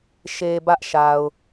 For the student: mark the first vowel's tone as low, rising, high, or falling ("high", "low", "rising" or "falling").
low